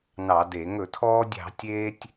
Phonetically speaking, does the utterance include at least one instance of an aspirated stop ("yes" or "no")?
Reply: yes